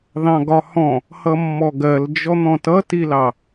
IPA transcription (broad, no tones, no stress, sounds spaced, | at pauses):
ð ɑ̃ ɡ ɒ h ɔ̃ | h ʌ mː ɔ ɡ ɜ l d͡ʒ ɔ n̪ ɔ̃ t ʌ t i l ɑ